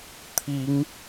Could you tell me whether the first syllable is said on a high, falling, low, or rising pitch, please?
rising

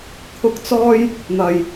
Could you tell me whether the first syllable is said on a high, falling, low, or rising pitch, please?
high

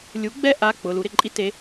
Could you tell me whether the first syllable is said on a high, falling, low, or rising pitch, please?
rising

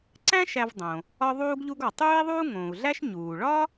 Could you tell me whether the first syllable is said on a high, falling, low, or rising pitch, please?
high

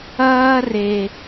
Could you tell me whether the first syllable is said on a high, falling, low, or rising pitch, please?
high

